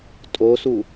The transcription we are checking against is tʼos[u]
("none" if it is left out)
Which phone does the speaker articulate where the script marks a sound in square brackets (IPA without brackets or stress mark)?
u